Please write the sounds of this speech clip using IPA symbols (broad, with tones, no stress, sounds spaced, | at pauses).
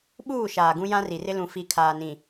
ɓ uː˦˨ ʃ aː˨ ɡ ũ˦ j ã˦ r i˨ r ɪ˦ l ũ˨ f i˨˦ kʰ aː˨ n ĩ˨